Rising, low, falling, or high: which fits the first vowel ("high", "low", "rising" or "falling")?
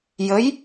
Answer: rising